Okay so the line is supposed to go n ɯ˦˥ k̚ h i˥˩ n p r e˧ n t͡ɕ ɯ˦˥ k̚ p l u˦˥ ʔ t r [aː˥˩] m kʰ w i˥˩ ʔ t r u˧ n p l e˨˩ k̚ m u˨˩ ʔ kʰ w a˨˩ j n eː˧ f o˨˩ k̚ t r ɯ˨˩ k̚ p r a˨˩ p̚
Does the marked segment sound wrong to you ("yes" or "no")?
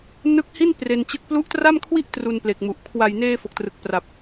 yes